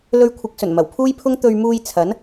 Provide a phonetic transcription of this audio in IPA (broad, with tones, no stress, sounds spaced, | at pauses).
l ɵ˧ ɥ kʷʰ ɪ˨˥ k̚ s ɵ˨˩ n m ɐ˨˩ w pʰ uː˥ j pʰ ʊ˥ ŋ t̪ ɵ˧ ɥ m uː˧ j t͡sʰ ɐ˨˥ n